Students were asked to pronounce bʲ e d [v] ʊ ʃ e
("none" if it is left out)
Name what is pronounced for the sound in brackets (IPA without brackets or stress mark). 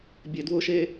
w